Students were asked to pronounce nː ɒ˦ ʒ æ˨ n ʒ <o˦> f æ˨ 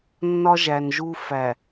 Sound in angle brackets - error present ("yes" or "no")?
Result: yes